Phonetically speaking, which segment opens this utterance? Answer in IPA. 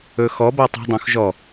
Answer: ɵ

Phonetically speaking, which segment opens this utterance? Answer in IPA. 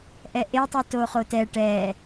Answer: ʔ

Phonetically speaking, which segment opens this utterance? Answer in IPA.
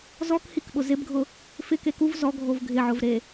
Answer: z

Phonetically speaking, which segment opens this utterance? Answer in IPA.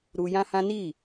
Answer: ɾ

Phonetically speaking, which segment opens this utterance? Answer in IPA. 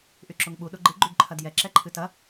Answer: ʔ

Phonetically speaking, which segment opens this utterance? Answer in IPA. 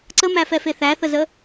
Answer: ǀ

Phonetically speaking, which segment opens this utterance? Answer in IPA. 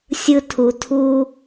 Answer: sʲ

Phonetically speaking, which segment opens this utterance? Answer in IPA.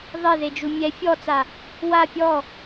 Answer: ðˤ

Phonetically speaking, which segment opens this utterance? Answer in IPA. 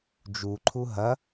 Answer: d͡ʒ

